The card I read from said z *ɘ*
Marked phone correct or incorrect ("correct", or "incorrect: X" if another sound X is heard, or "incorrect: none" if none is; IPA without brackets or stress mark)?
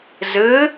correct